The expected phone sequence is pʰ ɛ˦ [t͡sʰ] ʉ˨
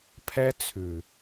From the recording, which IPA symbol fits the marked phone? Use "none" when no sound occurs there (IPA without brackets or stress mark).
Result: t͡sʰ